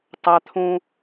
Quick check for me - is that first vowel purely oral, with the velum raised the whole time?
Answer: yes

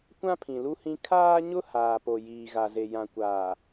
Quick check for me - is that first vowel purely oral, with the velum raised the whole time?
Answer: no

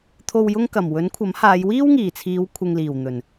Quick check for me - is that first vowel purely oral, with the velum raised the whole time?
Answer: yes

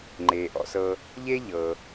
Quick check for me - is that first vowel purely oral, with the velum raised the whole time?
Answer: yes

